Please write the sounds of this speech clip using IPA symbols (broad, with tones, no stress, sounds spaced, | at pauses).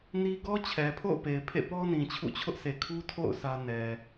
n i˦ ɡ ɔ˦ t͡ɕʰ ɛ˨ pʰ o̰˦˨ ʊ̯ p e˨ ɪ̯ pʰ ḛ˦˨ p ɔ˦ n ĩ˨ t͡ɕʰ ṵ˦˨ t͡ɕʰ ʊ˦ ʔ sʰ e˨ kʰ u˦ tʰ o̰˦˨ ʊ̯ sʰ ä˦ n ɛ˨